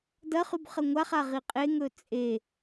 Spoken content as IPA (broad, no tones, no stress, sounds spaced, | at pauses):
d ɐ χ ʉ b χ ɐ ŋʷ a χ a ʁ i qʼ e ŋ ɵ t͡sʼ e